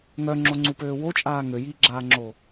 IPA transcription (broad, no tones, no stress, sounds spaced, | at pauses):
ŋ œ ŋ͡ǁ o ŋ͡ǀ u p øː w o t͡ʃʼ aː ŋ ø j iː ɡ͡ǁ aː ŋ͡ǁ oː